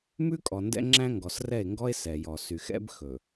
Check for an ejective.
present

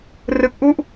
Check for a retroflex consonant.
absent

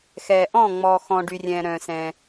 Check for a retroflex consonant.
present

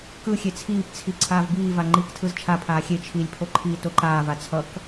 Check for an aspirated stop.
present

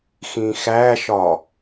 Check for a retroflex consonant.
absent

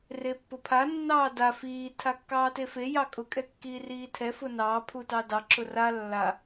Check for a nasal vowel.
absent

